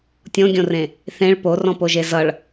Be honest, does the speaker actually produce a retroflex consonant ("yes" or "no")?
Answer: yes